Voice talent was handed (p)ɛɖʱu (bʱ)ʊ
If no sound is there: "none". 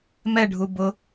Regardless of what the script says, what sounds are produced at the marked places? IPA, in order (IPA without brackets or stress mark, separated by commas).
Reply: m, b